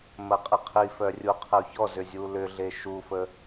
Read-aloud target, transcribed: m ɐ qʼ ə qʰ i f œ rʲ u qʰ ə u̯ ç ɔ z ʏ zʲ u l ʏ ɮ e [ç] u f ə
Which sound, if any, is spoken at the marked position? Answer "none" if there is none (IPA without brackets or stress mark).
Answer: ʃ